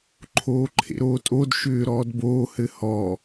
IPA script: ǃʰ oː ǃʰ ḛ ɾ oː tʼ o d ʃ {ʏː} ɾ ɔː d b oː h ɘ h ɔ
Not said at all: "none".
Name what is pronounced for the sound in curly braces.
ʏː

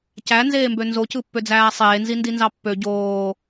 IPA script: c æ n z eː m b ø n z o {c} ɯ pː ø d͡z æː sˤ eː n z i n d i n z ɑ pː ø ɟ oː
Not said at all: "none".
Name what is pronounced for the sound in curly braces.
c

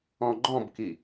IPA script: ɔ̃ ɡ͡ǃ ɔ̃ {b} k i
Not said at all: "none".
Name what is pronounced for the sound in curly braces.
b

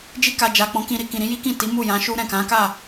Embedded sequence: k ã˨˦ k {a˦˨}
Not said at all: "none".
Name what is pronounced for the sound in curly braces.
a˦˨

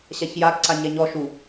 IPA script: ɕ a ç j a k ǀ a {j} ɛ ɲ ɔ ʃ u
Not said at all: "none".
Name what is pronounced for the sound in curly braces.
ɲ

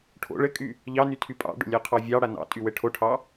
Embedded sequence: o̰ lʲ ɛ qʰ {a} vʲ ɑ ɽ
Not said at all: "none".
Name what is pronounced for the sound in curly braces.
ɑ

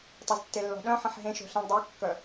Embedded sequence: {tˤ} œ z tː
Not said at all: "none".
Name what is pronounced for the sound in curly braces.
tˤ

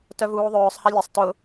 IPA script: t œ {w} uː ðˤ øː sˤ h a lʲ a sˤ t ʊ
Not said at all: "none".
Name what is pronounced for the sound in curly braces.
v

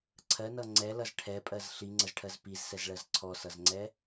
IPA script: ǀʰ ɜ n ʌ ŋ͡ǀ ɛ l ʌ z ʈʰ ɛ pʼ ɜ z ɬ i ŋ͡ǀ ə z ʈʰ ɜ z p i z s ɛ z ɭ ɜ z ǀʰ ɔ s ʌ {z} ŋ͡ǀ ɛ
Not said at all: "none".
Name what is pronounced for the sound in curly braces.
z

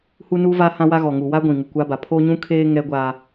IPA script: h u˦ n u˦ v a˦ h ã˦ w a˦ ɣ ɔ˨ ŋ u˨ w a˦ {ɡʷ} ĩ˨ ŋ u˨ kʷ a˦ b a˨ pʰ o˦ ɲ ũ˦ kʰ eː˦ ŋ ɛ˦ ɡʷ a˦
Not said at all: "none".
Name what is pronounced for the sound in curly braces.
ɡʷ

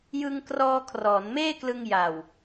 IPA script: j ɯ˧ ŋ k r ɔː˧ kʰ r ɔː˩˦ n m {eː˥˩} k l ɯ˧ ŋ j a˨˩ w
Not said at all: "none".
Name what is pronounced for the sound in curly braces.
eː˥˩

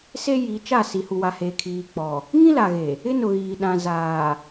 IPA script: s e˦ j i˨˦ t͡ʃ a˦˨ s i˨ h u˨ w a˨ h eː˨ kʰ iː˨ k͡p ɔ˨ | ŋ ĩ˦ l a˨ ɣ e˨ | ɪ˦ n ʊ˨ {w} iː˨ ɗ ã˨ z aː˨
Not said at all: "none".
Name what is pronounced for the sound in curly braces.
ɣ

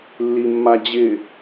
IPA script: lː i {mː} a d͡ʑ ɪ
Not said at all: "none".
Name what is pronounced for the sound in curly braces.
mː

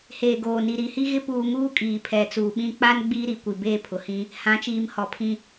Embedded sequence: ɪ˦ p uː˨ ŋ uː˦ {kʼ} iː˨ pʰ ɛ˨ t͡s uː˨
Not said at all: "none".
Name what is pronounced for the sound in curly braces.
kʼ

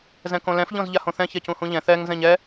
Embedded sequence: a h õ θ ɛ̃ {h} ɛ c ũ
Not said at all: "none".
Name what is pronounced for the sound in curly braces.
ç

